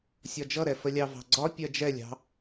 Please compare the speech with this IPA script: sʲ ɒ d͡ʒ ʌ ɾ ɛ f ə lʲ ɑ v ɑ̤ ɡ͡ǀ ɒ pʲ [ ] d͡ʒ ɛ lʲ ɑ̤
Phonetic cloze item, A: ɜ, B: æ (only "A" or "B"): A